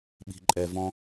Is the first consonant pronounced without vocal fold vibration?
no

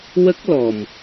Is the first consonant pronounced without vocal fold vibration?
no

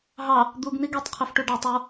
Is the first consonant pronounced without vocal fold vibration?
no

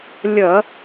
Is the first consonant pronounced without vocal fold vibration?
no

